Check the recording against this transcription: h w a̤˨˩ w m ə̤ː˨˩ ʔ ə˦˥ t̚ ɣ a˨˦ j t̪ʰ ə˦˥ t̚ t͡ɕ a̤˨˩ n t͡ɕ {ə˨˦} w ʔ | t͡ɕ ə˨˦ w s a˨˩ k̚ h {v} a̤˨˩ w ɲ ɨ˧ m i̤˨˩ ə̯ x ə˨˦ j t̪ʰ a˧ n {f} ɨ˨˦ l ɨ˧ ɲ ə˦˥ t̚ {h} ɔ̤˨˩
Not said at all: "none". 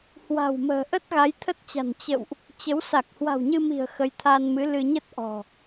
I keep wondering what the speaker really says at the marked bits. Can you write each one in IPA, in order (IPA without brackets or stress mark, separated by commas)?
ə̰˧˨, w, m, ʔ